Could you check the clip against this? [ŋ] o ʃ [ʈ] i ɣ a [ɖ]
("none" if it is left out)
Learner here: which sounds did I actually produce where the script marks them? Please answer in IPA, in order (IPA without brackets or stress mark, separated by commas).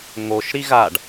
ŋ, ɾ, ɖ